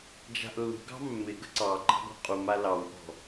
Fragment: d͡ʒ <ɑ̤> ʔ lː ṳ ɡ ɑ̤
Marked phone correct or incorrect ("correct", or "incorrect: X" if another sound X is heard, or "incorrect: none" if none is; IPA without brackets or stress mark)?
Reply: incorrect: a̤